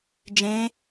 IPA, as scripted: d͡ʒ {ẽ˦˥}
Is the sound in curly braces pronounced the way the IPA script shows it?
yes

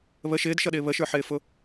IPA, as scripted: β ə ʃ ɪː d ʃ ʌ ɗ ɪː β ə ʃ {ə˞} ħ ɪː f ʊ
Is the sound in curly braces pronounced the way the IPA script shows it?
yes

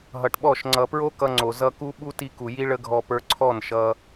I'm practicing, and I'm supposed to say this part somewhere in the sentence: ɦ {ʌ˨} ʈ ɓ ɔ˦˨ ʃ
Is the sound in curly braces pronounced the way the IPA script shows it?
yes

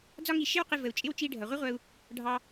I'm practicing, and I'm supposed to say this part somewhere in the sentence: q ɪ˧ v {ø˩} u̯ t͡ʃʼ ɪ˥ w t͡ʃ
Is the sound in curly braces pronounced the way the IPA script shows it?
no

